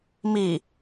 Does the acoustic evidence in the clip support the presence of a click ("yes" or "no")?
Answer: no